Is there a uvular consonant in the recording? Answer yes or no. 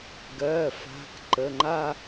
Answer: no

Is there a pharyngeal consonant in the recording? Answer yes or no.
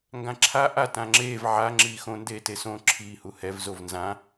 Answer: yes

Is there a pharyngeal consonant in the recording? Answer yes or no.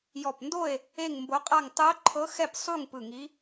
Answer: no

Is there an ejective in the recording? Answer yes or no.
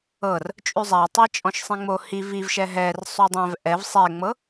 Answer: yes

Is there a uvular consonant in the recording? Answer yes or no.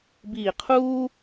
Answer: yes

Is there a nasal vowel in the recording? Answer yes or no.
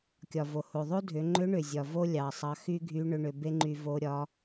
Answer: no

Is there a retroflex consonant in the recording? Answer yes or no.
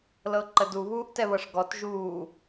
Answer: yes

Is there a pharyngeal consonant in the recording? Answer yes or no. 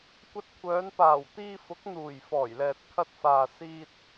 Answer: no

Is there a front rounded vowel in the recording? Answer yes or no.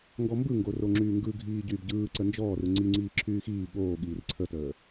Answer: yes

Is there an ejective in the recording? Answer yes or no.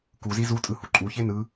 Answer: yes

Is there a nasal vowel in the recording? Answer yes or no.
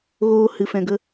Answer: yes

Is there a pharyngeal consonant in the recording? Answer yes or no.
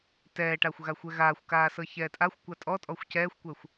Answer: no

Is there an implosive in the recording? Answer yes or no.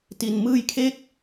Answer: no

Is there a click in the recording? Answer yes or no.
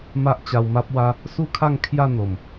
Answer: no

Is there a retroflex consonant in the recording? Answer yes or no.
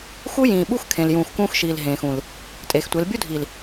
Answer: no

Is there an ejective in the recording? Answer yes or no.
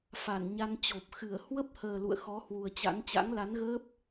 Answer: no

